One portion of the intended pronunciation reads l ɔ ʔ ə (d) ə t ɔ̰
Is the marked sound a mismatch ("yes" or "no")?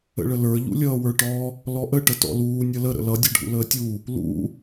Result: yes